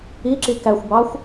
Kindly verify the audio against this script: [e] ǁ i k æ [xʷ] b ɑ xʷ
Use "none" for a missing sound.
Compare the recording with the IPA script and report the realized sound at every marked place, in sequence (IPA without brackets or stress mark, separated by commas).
i, xʷ